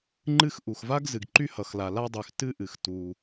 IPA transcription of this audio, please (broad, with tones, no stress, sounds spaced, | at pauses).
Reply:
ŋ͡ǃ ɨ˥ x ʔ u˩ x v a˥ ɡ z ɨ˩ ɡ ǃ y˥ h ʌ˩ x l a˩ l a˥ dˤ y˩ x t ɨ˥ ʔ ɨ˩ x t u˩